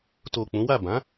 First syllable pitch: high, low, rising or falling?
low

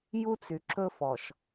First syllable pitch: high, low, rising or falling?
high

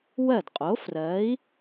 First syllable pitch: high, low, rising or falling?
falling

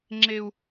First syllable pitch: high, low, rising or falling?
high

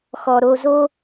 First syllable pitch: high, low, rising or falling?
low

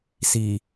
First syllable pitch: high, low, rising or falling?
low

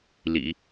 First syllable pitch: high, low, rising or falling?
low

